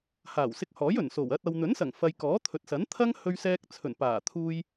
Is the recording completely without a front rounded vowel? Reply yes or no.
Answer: yes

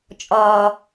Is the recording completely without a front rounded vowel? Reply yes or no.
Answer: yes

